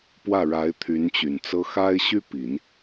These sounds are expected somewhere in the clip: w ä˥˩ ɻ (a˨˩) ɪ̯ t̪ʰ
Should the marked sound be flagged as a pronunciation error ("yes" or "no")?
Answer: yes